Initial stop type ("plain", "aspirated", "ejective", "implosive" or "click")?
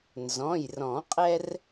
ejective